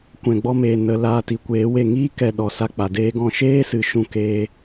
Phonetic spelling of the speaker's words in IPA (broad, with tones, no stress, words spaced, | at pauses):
kʷɛ̃˨ɡ͡bɔ˧meː˨ nə˨ laː˧ti˨kʷeː˨˦we˦˨ ŋiː˦kɛ˨ ɗɔ˨sa˦k͡pa˨deː˦ ɡɔ̃˧ʃeː˦sɨ˨ ʃũ˦keː˧